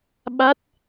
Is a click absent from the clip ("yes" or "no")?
yes